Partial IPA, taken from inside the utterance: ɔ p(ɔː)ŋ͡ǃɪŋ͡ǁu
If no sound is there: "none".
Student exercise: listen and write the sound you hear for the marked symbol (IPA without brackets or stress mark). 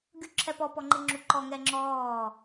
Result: ɔ